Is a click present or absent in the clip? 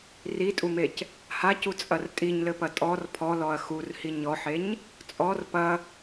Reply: absent